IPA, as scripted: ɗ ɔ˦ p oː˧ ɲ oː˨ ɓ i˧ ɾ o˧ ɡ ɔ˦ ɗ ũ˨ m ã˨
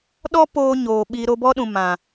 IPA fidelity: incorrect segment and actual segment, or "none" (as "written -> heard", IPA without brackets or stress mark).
ɡ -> b